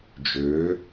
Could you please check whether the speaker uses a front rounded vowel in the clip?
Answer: yes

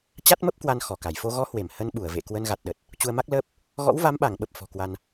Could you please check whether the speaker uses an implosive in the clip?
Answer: yes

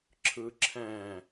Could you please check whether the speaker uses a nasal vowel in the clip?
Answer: yes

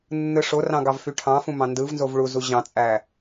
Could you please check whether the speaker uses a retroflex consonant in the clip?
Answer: yes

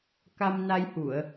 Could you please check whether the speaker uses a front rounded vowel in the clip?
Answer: no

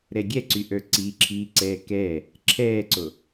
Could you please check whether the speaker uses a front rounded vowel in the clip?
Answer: yes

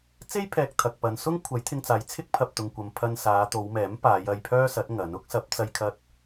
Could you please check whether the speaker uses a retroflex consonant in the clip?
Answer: no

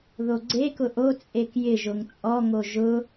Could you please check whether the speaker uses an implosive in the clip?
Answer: no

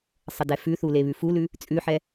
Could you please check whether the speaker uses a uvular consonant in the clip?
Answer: no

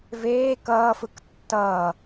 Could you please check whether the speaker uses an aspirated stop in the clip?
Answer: no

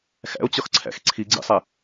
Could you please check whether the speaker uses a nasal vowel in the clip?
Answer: no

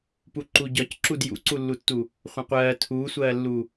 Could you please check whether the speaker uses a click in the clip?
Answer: yes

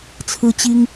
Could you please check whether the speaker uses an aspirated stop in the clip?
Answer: yes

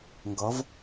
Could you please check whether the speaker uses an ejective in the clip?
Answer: no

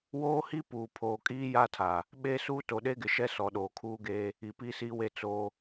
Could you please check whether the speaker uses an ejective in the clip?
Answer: yes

